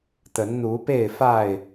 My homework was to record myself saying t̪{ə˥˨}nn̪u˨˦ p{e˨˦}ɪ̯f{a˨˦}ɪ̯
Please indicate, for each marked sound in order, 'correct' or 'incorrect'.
incorrect, incorrect, incorrect

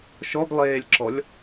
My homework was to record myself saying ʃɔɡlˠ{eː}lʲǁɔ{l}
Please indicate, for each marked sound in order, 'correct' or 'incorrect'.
correct, incorrect

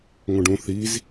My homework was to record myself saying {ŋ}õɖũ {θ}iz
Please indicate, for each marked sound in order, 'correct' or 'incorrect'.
correct, correct

